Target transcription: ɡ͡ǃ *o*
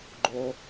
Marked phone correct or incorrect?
correct